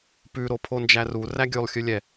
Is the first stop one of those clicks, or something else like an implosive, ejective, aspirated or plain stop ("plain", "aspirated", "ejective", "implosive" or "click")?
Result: plain